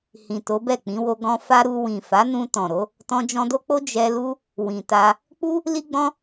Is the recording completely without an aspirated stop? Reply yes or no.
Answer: yes